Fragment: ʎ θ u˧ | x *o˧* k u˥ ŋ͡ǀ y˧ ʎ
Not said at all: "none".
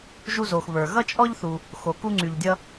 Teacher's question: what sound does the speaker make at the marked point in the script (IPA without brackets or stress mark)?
o˧